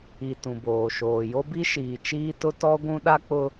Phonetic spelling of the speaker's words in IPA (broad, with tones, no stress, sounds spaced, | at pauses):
i˨ t ũ˨ b oː˨ ʃ oː˨ j o˦ b i˦ ʃ iː˨ t͡ʃ iː˦ t ʊ˦ t ɔ˦ ɡʷ ũ˦ ɗ a˦ k͡p ʊ˦